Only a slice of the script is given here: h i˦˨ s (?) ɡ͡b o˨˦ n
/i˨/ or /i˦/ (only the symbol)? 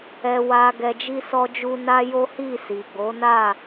i˨